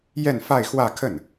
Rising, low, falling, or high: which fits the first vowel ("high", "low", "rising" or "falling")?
falling